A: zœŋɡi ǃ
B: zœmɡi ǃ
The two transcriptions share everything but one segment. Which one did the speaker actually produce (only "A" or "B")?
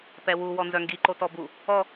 A